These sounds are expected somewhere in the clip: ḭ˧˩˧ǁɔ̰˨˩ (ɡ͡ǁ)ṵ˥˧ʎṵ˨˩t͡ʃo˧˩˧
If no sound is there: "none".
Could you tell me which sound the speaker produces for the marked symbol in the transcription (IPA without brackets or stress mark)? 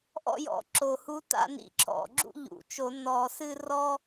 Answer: ɡ͡ǁ